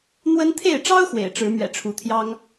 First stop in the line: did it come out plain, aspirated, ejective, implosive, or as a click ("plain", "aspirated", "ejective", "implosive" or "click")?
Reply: aspirated